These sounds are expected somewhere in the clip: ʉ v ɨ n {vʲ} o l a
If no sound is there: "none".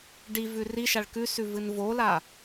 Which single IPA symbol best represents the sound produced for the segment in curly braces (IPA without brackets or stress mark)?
v